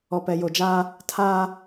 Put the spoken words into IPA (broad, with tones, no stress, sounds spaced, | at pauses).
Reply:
ɔ˨ p ɛ˨ j o˨ d͡ʒ aː˦ | tʰ aː˦